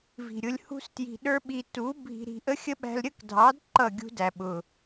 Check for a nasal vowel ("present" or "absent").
absent